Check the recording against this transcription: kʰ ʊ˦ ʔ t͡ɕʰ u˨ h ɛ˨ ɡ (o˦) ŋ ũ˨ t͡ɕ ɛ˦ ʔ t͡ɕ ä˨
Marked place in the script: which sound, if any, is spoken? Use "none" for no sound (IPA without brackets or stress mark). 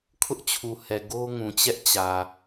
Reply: o˦